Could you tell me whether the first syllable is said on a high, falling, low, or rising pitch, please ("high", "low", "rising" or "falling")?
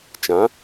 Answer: rising